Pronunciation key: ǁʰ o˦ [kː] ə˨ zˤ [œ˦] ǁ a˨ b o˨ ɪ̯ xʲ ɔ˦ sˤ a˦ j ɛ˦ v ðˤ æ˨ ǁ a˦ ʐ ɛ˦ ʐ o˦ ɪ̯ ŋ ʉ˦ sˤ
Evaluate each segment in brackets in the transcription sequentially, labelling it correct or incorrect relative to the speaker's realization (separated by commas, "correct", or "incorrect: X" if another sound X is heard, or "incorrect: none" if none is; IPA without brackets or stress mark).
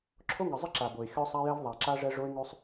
incorrect: ŋ, incorrect: ə˦